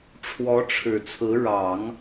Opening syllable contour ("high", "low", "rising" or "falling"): rising